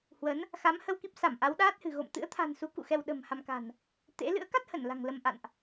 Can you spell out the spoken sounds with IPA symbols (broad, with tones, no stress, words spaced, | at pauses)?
hwə˨˦n | xa˨˦mhə˧wki˦˥p̚ sa˧˩mʔa˨˦wɗaː˦˥t̚hɨ̤˨˩ ɣo̰˧˨m t̪ɨ̰˧˥ə̯t̪ʰa̤˨˩nsu˨˦kṵ˧˨ xɛ˧wɗə̤˨˩m ha˧mka̤˨˩n | t̪ḛ˧˥ lɨ̰˧˥ə̯ka˦˥t̚hə˧˩n la̤˨˩ŋlə˧m ʔa̰˧˨nʔ